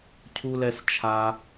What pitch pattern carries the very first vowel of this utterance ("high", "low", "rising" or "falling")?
high